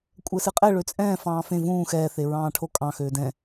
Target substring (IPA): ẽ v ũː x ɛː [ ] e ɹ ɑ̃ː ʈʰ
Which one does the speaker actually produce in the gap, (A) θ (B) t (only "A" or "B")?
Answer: A